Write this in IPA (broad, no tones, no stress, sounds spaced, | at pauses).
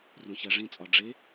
r ũ ç æ ʐ ĩ t͡sʼ ɒ ɖ͡ʐ e